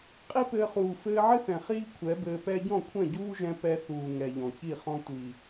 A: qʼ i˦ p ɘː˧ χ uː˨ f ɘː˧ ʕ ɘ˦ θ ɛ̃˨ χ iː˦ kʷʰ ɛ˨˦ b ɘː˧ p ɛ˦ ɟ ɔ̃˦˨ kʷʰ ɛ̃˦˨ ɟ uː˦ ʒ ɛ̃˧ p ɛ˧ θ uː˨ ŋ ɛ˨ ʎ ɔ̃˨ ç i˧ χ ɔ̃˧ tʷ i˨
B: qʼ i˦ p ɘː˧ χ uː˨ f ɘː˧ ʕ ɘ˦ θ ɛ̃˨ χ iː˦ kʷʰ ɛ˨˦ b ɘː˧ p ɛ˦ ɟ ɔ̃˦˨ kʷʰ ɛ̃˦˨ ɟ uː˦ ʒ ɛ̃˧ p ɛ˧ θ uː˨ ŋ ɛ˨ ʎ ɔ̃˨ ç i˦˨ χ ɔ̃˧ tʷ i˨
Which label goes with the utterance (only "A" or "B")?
B